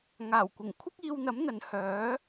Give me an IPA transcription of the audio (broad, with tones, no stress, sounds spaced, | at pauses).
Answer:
ŋ aː˨˩ w kʷ ɪ˨˩ ŋ kʷʰ ɪ˥ k̚ iː˧ w n̪ ɐ˨˥ m n̪ ɐ˨ n h œː˨˥